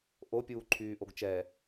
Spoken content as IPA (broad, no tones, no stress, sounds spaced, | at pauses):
ʔ o pʲ uː ǃʰ yː ʔ o ɡ t͡ʃ ɛ